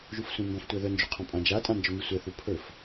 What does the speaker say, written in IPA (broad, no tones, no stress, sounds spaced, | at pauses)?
ʒ u f sʷ ĩ m b ɔ̃ f tʷ ɛ ð œ n d͡ʒ u qʰ ɔ̃ pʼ ã d͡ʒ a tʼ ã n d͡ʒ œ m i sʷ ɛ θ u pʰ ɵ f